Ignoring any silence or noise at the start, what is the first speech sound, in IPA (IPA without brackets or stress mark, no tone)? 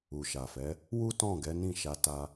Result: u